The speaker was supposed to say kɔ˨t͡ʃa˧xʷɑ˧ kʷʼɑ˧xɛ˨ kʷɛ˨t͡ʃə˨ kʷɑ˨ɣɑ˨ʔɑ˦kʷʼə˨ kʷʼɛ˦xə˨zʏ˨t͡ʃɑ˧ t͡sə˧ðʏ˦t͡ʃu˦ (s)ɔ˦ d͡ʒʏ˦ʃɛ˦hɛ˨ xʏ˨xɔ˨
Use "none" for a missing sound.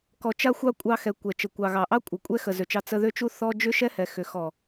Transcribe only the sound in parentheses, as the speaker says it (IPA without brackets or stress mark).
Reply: θ